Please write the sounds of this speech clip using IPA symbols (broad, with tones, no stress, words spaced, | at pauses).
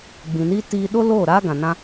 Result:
ɡ͡bĩ˨niː˦ tiː˧ ɗo˦ loː˦˨ɾaː˦ ɡã˨nã˦